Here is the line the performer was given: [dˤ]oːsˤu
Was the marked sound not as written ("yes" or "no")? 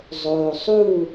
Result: yes